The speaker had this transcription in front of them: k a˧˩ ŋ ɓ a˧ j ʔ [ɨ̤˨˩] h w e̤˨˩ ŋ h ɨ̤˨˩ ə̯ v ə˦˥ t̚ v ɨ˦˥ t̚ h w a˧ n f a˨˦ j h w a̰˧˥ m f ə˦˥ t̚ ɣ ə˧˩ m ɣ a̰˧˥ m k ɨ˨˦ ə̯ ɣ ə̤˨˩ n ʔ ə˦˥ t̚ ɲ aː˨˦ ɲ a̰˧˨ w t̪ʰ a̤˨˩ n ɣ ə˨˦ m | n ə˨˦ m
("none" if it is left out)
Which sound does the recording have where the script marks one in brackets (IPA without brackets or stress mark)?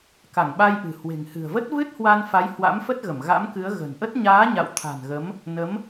ɨ̤˨˩